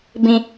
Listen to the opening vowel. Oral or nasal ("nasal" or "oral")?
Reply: nasal